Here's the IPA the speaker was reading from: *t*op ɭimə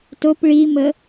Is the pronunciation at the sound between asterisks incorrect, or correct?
correct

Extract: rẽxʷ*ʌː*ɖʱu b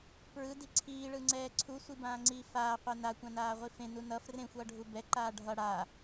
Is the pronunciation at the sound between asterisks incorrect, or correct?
correct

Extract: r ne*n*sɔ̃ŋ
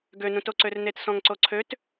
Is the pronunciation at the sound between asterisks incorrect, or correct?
incorrect: t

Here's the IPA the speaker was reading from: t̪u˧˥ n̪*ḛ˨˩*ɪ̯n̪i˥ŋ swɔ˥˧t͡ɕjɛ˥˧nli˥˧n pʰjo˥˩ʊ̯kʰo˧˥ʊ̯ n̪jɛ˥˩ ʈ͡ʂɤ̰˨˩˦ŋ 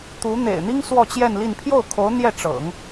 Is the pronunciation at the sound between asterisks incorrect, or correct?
correct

